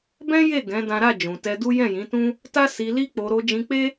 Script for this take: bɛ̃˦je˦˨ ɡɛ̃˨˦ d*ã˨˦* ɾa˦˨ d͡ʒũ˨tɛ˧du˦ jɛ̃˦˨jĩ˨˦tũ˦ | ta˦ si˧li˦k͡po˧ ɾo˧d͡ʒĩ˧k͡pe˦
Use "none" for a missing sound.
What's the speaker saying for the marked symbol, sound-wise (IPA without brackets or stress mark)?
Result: ã˦